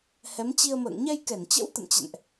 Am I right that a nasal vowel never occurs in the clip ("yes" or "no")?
yes